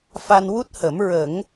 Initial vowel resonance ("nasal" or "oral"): oral